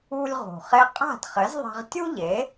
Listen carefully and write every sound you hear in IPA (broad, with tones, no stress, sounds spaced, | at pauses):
u˧ lʲ ʁ ṳ˩ χ e˧ qʼ a̤˥˩ d χ ɘ˩˥ z ðˤ e̤˧ ʁ tʲ u˥ ʎ e˩˥